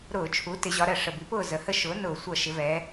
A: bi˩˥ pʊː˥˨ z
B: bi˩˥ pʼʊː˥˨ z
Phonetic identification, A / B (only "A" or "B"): A